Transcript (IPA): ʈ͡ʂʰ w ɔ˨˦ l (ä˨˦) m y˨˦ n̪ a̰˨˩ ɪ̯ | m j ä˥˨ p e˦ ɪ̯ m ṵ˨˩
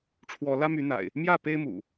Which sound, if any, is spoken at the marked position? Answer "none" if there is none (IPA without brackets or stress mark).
ä˦